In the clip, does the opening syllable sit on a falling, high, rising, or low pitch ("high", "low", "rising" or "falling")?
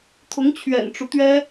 rising